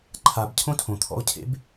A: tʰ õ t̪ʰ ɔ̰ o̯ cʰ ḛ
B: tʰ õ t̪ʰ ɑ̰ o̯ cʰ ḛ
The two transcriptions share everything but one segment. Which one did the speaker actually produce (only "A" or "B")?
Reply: A